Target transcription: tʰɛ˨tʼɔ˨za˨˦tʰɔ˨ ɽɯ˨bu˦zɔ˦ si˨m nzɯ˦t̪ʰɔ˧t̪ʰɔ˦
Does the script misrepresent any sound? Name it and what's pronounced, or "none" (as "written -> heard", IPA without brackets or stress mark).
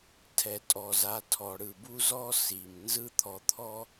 none